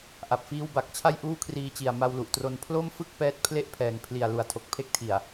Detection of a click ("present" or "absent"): absent